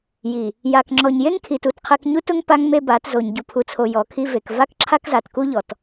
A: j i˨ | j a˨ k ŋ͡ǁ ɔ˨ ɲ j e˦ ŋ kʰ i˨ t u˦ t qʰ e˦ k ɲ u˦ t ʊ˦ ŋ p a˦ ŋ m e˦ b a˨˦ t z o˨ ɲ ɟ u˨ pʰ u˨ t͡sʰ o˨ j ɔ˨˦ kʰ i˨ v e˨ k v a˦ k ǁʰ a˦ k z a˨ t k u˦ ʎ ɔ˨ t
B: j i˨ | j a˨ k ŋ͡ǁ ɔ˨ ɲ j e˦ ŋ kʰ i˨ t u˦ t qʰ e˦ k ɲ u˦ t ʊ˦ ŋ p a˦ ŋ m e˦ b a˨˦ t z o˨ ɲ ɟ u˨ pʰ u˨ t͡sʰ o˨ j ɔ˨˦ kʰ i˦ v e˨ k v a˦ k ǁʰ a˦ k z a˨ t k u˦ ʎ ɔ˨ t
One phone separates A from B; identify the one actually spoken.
B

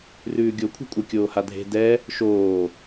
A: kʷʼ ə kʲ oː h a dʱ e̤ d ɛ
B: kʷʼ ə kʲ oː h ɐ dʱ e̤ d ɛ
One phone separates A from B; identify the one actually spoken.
A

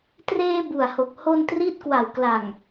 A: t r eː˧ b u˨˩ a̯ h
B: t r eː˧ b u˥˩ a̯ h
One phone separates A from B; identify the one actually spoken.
A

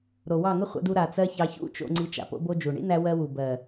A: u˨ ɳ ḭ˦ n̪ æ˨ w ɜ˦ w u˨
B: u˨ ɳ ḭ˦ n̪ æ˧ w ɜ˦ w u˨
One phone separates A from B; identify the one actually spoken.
B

